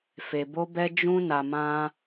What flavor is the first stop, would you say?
plain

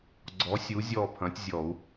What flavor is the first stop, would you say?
click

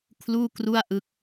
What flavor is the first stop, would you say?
aspirated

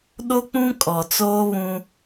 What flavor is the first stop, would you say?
implosive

